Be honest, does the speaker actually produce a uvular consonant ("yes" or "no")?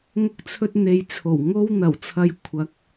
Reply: no